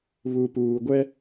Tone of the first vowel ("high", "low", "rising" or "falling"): low